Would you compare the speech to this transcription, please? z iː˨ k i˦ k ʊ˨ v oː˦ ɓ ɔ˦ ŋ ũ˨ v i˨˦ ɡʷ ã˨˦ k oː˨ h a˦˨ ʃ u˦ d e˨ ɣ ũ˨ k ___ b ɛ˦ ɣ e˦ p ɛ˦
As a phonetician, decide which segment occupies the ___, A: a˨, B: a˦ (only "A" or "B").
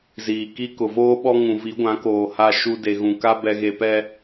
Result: B